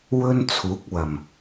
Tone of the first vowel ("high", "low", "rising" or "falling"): high